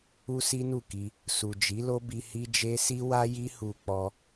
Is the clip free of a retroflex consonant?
yes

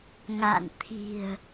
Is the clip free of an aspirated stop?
no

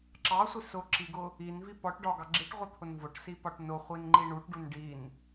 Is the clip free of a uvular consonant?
no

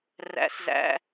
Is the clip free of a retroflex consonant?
yes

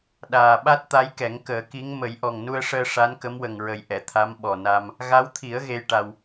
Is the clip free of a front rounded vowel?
yes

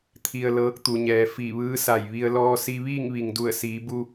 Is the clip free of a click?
yes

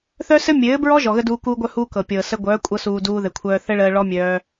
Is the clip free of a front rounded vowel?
no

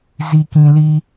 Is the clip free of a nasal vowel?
no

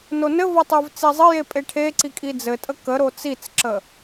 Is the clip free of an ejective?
no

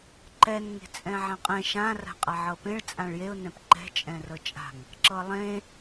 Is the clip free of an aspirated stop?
yes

